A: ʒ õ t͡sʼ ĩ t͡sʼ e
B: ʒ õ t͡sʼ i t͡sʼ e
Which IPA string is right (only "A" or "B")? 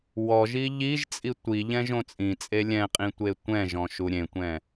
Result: A